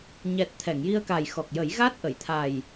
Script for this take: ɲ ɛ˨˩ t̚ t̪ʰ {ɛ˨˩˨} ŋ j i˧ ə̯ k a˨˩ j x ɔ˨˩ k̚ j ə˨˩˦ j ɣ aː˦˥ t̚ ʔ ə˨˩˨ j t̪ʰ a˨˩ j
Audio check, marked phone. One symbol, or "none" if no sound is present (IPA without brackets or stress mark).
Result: ɛ˨˩˨